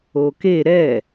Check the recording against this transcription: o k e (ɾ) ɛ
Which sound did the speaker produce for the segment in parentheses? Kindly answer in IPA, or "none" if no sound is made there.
ɾ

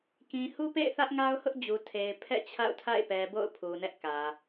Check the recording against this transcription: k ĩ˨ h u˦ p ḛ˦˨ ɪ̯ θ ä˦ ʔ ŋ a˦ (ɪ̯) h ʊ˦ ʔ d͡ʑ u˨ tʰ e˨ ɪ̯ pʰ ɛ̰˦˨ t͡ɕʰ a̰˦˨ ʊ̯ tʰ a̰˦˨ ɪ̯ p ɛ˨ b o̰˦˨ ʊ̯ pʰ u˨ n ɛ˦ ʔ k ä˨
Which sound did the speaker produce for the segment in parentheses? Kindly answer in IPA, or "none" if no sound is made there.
ʊ̯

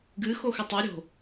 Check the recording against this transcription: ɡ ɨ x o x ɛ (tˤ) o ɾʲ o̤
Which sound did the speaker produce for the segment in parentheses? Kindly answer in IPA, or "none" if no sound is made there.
tˤ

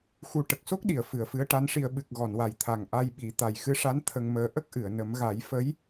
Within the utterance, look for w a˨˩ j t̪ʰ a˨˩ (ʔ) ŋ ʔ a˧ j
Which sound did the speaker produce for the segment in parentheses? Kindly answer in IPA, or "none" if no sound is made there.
none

